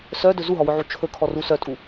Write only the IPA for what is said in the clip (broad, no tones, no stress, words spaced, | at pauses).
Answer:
sœdɵ zuɦɔwɵʕu t͡ʃʰɵkʰɔru sœtʼu